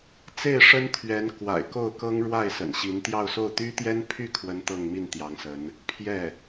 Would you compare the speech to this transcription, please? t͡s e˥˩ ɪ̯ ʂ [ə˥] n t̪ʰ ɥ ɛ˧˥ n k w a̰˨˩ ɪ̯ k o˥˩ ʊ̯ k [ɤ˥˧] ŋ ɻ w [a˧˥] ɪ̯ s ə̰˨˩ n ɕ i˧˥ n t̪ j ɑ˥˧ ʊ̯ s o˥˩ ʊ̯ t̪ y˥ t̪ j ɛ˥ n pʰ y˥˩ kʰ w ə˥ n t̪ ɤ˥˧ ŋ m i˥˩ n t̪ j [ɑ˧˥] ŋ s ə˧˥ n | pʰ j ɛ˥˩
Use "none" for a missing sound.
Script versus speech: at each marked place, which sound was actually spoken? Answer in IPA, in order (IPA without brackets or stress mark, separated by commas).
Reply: ə˥, ɤ˥, a˥˩, ɑ˧˥